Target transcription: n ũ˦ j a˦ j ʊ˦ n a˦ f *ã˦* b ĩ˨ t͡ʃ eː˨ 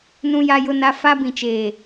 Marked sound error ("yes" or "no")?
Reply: yes